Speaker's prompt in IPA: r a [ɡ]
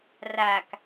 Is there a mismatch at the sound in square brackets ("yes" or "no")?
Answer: yes